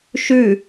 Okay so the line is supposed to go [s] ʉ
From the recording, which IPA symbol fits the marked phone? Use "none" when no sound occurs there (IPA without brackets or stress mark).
ʃ